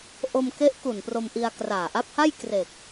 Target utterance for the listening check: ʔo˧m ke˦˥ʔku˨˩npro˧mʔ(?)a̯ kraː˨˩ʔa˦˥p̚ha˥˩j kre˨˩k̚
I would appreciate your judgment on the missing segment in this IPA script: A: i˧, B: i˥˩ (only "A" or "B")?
A